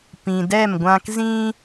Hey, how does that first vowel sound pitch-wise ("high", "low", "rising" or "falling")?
low